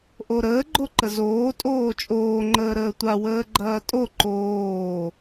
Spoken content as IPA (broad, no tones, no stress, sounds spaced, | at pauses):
ʔ o ɾ əː ɡ͡ǃ o ǃ ə z oː tʼ oː t͡ʃʼ oː ŋ͡ǃ əː ɾ əː tʷ a w əː ɡ͡ǃ ɐː tʼ o ǃ oː